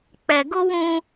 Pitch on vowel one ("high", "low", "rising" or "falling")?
low